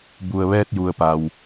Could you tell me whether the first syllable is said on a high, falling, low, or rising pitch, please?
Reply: low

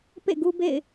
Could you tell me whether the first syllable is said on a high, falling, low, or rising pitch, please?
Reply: falling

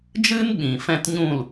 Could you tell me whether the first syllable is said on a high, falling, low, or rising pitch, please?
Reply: high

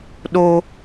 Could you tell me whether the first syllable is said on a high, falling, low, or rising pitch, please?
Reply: high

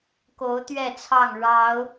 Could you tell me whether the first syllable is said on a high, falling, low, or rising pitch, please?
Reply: rising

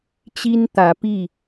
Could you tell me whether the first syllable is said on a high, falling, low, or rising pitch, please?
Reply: high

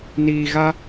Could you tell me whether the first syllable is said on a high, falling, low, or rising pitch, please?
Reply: low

